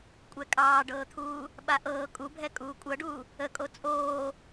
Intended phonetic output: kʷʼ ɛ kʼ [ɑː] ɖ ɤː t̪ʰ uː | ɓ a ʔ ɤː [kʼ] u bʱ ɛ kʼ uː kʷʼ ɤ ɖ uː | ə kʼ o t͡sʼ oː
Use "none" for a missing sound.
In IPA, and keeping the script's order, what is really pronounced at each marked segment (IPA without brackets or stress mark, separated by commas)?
ɑː, kʼ